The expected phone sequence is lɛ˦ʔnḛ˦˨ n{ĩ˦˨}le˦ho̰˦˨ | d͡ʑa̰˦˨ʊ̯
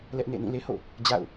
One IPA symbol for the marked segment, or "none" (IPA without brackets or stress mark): ĩ˦˨